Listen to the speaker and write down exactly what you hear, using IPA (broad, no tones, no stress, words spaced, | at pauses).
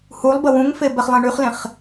hulˠ bəwũŋfe bɛχlˠẽɳyχlẽχ